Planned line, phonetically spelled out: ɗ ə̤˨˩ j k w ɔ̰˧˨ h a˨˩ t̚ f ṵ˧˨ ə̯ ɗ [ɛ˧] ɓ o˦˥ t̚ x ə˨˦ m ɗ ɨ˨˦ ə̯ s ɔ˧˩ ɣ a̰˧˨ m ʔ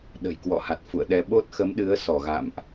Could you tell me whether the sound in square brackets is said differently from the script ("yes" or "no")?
no